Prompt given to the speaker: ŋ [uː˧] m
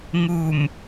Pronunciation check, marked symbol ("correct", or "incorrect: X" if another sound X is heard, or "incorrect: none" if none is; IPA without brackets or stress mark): incorrect: uː˨˩